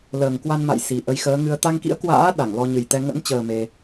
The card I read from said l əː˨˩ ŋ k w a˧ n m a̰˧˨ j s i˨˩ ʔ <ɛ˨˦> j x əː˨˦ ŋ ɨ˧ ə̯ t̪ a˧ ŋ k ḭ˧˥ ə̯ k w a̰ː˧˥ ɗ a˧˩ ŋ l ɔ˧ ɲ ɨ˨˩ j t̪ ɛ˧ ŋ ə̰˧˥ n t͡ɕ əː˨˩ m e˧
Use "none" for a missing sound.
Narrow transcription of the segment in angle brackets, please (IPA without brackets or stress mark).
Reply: ə˨˦